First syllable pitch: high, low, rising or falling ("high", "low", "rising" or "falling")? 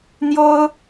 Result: high